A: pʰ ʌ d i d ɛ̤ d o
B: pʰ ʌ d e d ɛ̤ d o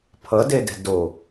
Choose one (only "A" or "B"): B